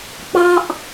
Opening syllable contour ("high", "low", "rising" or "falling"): high